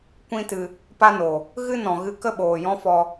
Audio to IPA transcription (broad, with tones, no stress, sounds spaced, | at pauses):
kʷ ĩ˦ t ɨ˧ | p a˦ n o˨ | ɣ ɨ˦ n ɔ̃˨ ɣ ɨ˧ k ə˦ ɓ oː˨ j ɔ̃˦ f ɔ˧